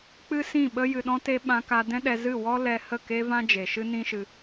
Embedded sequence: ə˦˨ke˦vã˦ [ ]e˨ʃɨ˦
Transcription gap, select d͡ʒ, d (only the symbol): d͡ʒ